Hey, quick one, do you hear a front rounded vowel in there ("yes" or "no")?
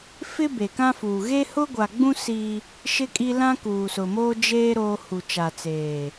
no